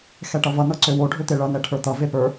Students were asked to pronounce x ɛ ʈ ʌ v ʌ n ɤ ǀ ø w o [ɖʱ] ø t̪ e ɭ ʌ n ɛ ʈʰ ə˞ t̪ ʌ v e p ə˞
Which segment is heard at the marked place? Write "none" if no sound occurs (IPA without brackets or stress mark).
ɖʱ